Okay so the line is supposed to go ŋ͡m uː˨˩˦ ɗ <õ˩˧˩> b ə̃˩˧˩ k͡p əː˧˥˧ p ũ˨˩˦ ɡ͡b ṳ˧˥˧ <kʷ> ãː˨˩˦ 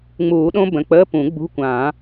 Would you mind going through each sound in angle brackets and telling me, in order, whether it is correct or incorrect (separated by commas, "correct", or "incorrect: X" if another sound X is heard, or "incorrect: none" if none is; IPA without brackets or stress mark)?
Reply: incorrect: õ˦˥, correct